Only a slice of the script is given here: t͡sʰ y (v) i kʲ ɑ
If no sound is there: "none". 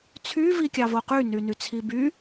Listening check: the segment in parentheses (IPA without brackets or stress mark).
v